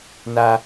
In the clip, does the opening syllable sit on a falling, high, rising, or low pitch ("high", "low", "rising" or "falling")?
high